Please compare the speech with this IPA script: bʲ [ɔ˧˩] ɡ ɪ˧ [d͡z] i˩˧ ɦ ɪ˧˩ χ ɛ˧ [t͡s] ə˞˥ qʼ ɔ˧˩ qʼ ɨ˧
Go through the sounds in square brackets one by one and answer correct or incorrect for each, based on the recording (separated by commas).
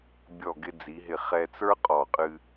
correct, correct, correct